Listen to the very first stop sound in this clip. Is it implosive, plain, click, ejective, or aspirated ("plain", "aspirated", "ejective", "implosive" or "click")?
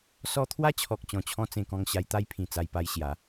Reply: aspirated